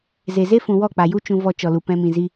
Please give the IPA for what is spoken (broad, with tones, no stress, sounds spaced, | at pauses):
z e˨ z e˦ f ũ˨ w ɔ˦˨ k͡p a˨ j u˦ t͡ʃ ũ˧ v ɔ˧ t͡ʃ ɔ˨ l u˨ p ɛ̃˧ m ĩ˨ z i˧